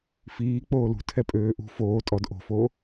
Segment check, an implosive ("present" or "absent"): absent